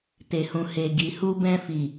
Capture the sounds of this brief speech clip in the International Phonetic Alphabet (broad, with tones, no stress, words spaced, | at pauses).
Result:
te˨hũ˨he˨ ɡi˨hu˧ bɛ̃˧fi˨